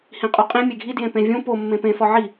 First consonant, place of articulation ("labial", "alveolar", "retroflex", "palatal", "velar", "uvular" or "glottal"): glottal